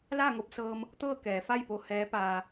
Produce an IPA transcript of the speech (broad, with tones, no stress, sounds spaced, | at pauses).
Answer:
l a˥˨ ŋ o˧ p̚ s ɤː˧ m | t̪ ɤː˥˨ k ɛː˩˧ f a˥˨ j p o˧ h ɛː˧˥ p aː˧